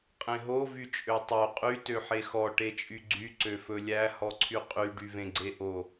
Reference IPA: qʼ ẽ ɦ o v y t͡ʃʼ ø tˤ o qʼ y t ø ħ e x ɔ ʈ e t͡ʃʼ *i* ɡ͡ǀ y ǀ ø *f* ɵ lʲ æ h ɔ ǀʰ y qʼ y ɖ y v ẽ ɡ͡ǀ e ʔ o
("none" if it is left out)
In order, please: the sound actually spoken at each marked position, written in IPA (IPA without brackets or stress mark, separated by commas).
y, f